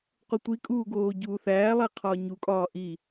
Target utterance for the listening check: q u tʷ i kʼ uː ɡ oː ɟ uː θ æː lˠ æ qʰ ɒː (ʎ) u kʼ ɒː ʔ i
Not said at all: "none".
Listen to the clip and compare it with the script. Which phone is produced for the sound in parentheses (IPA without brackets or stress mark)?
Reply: ɲ